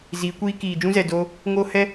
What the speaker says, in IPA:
z iː˨˦ kʷ iː˦ k iː˨ d͡ʒ ũ˦ z ɛ˨ d o˧ | ŋ oː˦ h ɛ˦

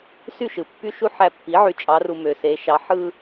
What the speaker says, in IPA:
s y˥˨ ʃ ɯ˩ pː y˦ ʃ u˦ ħ æ˧˩ pː i˩˥ ʕ y˩˧ t͡ʃʼ ɑ˩˧ r u˩ m ø˩ s e˩˧ ʃ ɑ˩˥ ħ ɯ˦

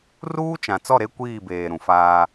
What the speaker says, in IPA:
r uː˦ t͡ʃ ã˨ t͡s ɔ˦˨ ɾ e˦ kʷ iː˦˨ b eː˨ ɾ ũ˨ f aː˦

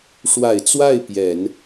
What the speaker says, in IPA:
ʂ w a˨˩ ɪ̯ t͡s w a˥˩ ɪ̯ p j ɛ˨˩˦ n

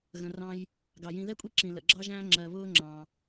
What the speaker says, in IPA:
ɣ ə̃˩ r ɑ̃˨ j | ɡ ɑ˩ j ĩ˨ ð ɛ˥ kʷʼ i˦ ǁ ĩ˩ l ə̰˩ ɡ͡ǁ ɑ˥ ʒ æ̃ː˥ ŋ͡ǁ ɜ˨ β ʊː˥ ŋ͡ǁ ɑ̃˩

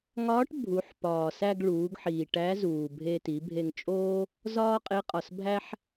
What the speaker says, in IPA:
ŋ ɒː˧˥ ʈ bʱ u˩˧ ħ p ɒː˩ s æ˧ ɡ ɭ uː˩˧ ɡ ħ iː˩ ʈ æ˧˥ z uː˩ bʱ e˧ t i˩˧ bʱ e˧ ŋ t͡ʃʼ oː˥ | z ɒː˥ qʼ e˧˥ qʼ ɒ˩ s bʱ æ˥ ħ

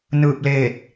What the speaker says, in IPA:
n ɯː˧˩ p̚ l eː˧˩ t̚

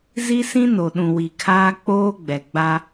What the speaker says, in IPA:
z i˦ s ĩ˦ n o˨ ɗ ũ˨ w i˨ kʰ aː˦ k͡p oː˦ ɡ͡b ɛ˨ ɡ͡b a˦

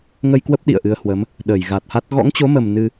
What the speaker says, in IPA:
ŋ ə˧ j k w ə˦˥ p̚ ɗ ḭ˧˨ ə̯ ʔ ɨ˨˦ ə̯ h w ə˨˦ m | ɗ əː˧˩ j ɣ a˨˩ t̚ h a˦˥ t̚ ɣ ɔ̰˧˥ ŋ t͡ɕ o˨˦ m ə˨˩ m n ɨ˧

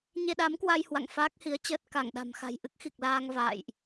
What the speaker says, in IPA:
ɲ e˧ ɗ a˨˦ m k w a˧ j h w a̰˧˨ ŋ f aː˦˥ k̚ h i˨˦ ə̯ t͡ɕ əː˦˥ t̚ k a˧˩ ŋ ɗ a̤˨˩ m x a̤˨˩ j ʔ ɨ˦˥ k̚ x i˨˩ k̚ l aː˧ ŋ v a̰ː˧˨ j ʔ

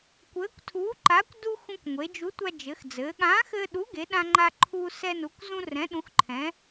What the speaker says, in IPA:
kʷ ɘː˨˥ kʷ tʰ uː˨˥ ǃ aː˨˥ kʷ d u˧ x ũ˧ kʷ ŋʷ e˩˧ d͡ʒ u˨˥ tʷ a˧ d͡ʒ ɘ˩˧ x d͡z ɘː˩˧ ɠ ãː˨˥ x ɘː˧ ɗ u˨˥ ɡ e˩˧ ɗ ã˧ ŋ͡ǃ a˧ ǃʰ uː˧ s ɛ˧ n u˩˧ kʷ z ũ˧ r ɛ̃˩˧ ɗ ũ˩˧ x ǃʰ ɛ̃˩˧

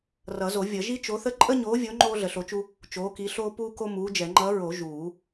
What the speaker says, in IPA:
r ʌ˨˩˦ z o˨˩˦ vʲ ʌ˨˩˦ ʒ i˥ t͡ʃ o˨˥ θ ə˥ ǃʼ ə˥ ɲ oː˨˥ vʲ o˨˥ ŋ͡ǃ oː˥ ɮ ə˨˩˦ ɬ o˨˥ t͡ʃ u˥ | t͡ʃ oː˨˥ k i˨˥ ɬ oː˥ p uː˥ k o˥ m uː˨˥ d͡ʒ ɛ˨˩˦ ŋ͡ǃ ʌ˨˥ ɹ o˨˩˦ ʒ uː˨˩˦

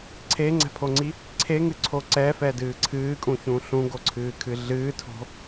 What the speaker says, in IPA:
ǀʰ e ŋ͡ǀ ɛ̤ pʰ o ŋ͡ǀ i | ǀʰ e ŋ ɨ ǀʰ o ǀ ɛ f ɛ d ɨː ǀʰ ɨː kʼ ũ ç ũ ɬ ũ ɡ o ǀʰ ɨː kʰ ɨ ɮ ɨː tʰ o̤

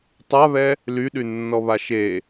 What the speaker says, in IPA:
tˤ a β ɛ | l y ɗ y nː ɔ β a ʃ e

